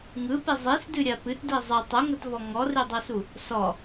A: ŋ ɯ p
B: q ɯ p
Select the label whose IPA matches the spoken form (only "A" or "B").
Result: A